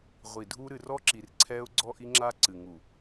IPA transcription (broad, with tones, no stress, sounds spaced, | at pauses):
ʁʷ i˨ dʱ u˦ ɾ ɨ˨ r ɔ˦ ǁ i˨ r ǀʰ ɛ˦ ʊ̯ ɡ͡ǀ ɔ˦ ʔ i˦ ŋ͡ǁ a˦ ǀ ɨ˨ ŋ u˨